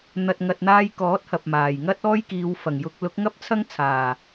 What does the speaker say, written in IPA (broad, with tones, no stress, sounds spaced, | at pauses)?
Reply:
n̪ ɐ˨ t̚ ŋ ɐ˨ t̚ n̪ aː˧ j k ɔː˨˥ t̚ h ɐ˨ p̚ m aː˨˩ j ŋ ɐ˥ t̚ ɔː˥ j k iː˨˧ w f ɐ˨˩ ŋ j ʊ˧ k̚ l ʊ˨˥ k̚ ŋ ɐ˥ p̚ t͡sʰ ɐ˥ ŋ t͡sʰ aː˨˩